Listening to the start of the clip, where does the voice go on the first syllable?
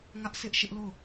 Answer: high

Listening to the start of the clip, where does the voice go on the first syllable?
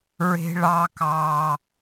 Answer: high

